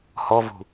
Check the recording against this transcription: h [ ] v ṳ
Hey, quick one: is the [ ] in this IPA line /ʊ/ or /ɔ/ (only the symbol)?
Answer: ɔ